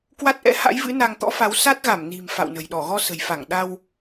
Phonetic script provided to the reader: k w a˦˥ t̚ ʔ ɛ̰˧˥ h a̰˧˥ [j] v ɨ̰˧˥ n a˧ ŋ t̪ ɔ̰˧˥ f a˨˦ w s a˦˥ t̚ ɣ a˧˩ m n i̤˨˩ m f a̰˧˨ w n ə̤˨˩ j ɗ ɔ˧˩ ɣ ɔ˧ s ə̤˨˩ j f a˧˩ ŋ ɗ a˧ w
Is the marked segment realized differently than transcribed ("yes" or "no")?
no